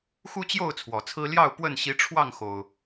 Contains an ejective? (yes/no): no